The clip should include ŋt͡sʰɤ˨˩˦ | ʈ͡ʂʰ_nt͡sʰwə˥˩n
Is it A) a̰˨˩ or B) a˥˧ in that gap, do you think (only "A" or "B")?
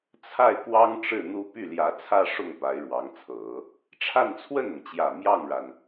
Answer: B